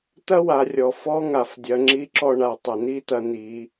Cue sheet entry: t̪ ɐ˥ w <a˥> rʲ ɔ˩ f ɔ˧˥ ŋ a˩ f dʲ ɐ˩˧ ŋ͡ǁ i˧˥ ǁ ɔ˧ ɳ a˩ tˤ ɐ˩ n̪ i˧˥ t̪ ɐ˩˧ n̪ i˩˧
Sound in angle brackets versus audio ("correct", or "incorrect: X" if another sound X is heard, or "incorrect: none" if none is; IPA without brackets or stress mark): incorrect: a˩˧